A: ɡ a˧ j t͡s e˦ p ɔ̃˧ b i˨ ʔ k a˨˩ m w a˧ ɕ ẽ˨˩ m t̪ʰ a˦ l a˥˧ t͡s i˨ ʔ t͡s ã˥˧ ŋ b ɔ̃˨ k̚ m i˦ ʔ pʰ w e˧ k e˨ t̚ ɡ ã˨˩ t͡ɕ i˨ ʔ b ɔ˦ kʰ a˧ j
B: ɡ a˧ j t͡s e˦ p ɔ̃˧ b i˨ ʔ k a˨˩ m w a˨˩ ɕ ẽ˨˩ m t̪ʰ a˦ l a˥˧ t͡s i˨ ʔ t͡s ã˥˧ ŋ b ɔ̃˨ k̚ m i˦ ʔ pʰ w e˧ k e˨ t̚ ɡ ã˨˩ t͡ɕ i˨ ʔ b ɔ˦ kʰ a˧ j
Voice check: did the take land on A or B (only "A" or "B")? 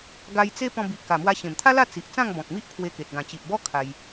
A